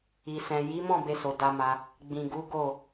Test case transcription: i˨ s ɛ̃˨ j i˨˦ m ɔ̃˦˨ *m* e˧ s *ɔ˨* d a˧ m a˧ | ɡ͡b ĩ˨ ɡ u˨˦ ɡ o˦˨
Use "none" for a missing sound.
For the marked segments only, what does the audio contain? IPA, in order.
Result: b, o˨

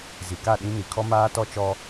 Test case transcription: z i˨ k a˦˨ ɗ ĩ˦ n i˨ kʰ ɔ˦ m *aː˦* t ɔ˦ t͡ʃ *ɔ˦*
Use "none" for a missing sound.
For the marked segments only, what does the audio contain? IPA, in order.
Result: aː˦, ɔ˦

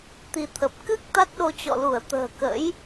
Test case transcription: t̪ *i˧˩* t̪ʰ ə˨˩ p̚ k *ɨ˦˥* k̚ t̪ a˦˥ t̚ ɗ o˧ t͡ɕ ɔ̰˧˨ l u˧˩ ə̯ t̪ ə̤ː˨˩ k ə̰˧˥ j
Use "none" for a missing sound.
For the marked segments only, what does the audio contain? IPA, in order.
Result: i˧, ɨ˦˥

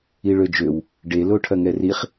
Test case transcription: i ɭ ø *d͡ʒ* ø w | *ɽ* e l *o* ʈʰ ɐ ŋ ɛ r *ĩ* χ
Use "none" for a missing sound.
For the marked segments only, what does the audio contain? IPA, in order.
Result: d͡ʒ, ɖ, o, i

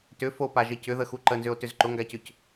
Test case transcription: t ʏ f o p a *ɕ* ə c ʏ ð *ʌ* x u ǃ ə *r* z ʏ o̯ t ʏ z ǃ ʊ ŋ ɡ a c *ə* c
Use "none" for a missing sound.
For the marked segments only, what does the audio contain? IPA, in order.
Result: ʒ, ə, n, ʏ

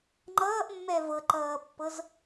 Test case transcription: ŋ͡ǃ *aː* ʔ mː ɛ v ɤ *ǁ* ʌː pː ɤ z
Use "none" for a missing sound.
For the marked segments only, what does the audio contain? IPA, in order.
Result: ʌː, ǃ

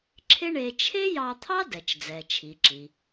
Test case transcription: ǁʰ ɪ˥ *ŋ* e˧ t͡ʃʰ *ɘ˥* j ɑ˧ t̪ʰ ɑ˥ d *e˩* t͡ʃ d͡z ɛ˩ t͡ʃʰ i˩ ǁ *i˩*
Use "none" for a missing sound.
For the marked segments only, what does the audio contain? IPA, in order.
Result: ɳ, e˥, ɛ˩, i˩

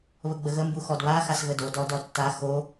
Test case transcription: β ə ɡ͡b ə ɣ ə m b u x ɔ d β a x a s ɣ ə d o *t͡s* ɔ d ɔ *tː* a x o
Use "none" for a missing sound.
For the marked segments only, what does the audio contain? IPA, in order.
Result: d, tː

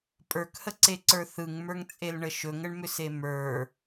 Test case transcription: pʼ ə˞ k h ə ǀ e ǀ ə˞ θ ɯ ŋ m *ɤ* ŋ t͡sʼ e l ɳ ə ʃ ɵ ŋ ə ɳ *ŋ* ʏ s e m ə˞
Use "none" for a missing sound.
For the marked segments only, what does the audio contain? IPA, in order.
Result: ə˞, m

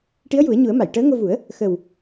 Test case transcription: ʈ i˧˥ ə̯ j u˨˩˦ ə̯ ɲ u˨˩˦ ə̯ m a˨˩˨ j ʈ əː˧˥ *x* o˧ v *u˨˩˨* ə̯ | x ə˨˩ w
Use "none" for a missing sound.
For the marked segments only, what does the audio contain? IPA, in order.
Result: ŋ, u˨˩˦

